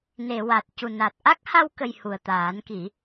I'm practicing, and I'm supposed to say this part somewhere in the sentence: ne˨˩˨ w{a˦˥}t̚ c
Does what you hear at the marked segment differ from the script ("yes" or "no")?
yes